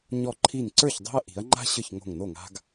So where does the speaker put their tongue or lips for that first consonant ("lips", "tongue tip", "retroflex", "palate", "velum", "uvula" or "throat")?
palate